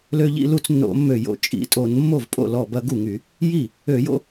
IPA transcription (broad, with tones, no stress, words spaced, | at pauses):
lø˦ʎḭ˦lu˦t͡s nːo̰˧˩˧mːø˧˩jo̰˧˩ t͡ʃʼḭ˩˧tʼo˧˩˧n mːo˥˩vpʼo̰˥˩lɔ˧˩ bɐ˦ɡu˥˩ŋy˧˩˧ | ji˥˩ | ø˧˩˧jo̰˦